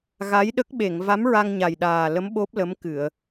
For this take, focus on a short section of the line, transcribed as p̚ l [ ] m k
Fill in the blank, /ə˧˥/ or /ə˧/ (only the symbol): ə˧˥